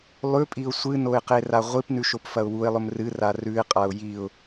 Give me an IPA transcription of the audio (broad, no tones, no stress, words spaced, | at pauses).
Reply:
lˠʉpʼiʊ̯ sʷɨnoɪ̯qera ʁʷipnʉʃopfɐʊ̯ wuɪ̯lˠɵm rɨra rʉɪ̯qʼaʊ̯ jiʊ̯